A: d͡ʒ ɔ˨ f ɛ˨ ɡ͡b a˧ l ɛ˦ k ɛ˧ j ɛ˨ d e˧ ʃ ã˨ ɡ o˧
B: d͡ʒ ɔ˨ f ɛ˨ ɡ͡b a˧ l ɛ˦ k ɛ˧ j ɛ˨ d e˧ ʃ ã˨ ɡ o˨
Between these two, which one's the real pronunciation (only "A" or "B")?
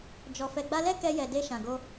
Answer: A